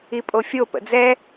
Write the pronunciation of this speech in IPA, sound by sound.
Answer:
i pʼ o fʲ o p ə̰ d͡z ɛ

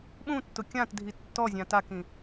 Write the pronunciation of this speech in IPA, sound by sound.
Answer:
ɓ ũ tː ʊ kʲ ã t dʱ i tː ɔ zʲ ã t a k ĩ

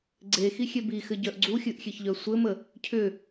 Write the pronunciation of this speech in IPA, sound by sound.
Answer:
ɡ͡ǀ e x i xʲ e b i x ɘ ɟ œ ʔ ɡ͡ǀ u xʲ ɨ ʔ xʲ e ç ʎ œ sʷ ɘ m ə | cʰ ʏ

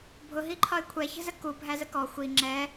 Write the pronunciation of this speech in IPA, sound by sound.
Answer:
bʱ ʊ ɦ i ǃʰ ɒ ɪ̯ kʷʰ ɛ ç ə̤ z ə k u bʱ æ z ə k ɔ xʷ i ŋ͡ǁ ɛ

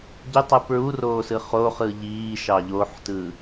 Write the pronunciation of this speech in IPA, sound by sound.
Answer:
ɟ y tˤ ɯ p ɹ u r oː s ɯ χ o χ ɯ ʎ iː ʃ ɑ ʎ o ħ t ɯ

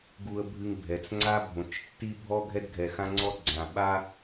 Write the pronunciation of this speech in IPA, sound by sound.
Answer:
ɡ u˦ ə̯ bʱ ɨ˦ ŋ bʱ ɛ˨ t͡s ŋ͡ǀ a˦ bʱ õ˨ t͡ʃ tː i˦ bʱ ɔ˦ ɡʱ ɛ˦ d ɡʱ ɛ˨ x ã˦ ŋ͡ǀ ɔ˦ ɡ͡ǀ ã˨ ɓ a˦

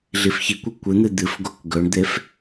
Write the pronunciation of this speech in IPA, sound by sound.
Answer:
ɮ i f ç i kʷ ɐ kʷ ɨ n̪ ɨ d̪ ɨ f ɡ o k ɡ ɵ ɳ d̪ e f

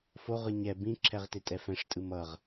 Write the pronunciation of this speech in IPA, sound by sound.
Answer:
f o ʁ ɯ ɲ ɛ b ĩ ǁʰ ɛ ʁ t e tʼ ɛ f ɛ̃ ʂ tʼ ɯ m ʌ ʁ

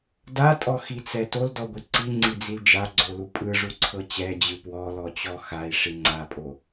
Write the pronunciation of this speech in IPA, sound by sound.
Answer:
d a tʼ ɔ x i t͡s ɛ t o l d ɔ ɡʷ i ǀ i ŋ͡ǀ i d͡z i l d͡ʒ a ɡ͡ǀ o l u pʼ ɯ ʐ u ǀʰ ɤ t͡ɕ ɛ d͡ʑ ɯ p w ɔ l ɔ t͡ɕ ɔ x a i̯ ʂ i ŋ͡ǀ a pʼ o

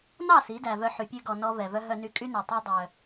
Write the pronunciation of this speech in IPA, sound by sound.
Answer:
n ɑ˦˨ s i˨˦ d æ˨ v œ˧ ħ y˨ pʲ ʉ˧ ɡ ɔ˨ n ɔ˦ v ɛ˨ v œ˦ ɦ œ˧ n y˧ kʼ y˦ n ø˨ tˤ ɛ˦ dˤ œ˧

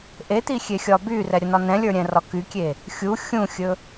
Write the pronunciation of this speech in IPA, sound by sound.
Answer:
ʔ e t̪ i xʲ e xʲ ɒ b y r ɛ ɾʲ ə n ɒ n ɛ̃ lʲ ə˞ ɾʲ ɛ̃ r ɒ k y kʲ e | xʲ u xʲ ũ xʲ ɵ

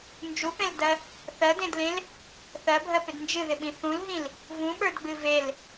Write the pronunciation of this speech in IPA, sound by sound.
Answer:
n d͡ʒ u p ẽ l d ɜ | θ ɜ d ẽ d l ẽ l | θ ɜ bʱ ɜ p ɪ d n d͡ʒ ɨ ð ɪ ɓ ĩ θ ũ l ɦ ĩ l | v ũ ɓ ə˞ d ɡ͡b ɨ v e l

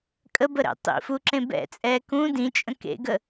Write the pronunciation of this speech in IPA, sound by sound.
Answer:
kʼ ə b ə ɾ ɛ̰ tˤ ḭ f u ǁ ẽ b ɛ̰ t͡sʼ ɛ k ũ d ĩ t͡ʃʼ ə̃ k ḛ ɡ ə

